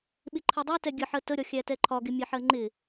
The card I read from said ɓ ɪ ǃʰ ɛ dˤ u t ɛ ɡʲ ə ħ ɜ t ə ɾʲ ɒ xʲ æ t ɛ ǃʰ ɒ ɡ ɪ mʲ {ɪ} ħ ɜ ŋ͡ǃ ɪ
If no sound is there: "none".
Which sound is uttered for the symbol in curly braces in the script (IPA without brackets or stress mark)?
ɛ